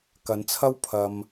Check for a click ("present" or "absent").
absent